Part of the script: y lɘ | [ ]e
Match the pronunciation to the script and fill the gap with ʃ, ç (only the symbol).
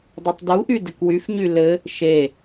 ʃ